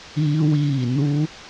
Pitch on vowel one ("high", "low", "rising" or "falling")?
high